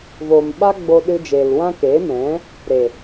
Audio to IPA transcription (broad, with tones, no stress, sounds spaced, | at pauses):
v oː˨ m ɓ a˦ ɡ͡b o˧ ɗ ɨ˧ d͡ʒ eː˨ l w ã˧ k eː˨˦ m ɛ̃˨˦ | ɾ e˨